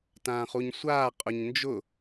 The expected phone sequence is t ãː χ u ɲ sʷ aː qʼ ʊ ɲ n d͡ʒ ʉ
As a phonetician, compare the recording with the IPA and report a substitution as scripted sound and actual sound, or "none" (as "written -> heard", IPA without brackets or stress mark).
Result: ʉ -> ʊ